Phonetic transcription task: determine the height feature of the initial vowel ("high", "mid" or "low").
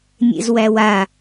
mid